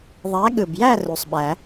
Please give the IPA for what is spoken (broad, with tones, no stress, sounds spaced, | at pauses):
ðˤ æ˨˥ ɠ ɯ˨˩ b j æ˥˨ r u˨˩ sˤ ɓ æ˨˩˦